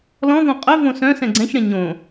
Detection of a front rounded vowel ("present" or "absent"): present